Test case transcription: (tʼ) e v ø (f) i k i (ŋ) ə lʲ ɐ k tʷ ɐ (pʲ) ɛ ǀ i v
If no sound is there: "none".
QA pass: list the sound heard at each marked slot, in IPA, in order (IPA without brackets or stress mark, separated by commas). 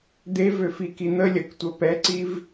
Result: d̪, f, n̪, p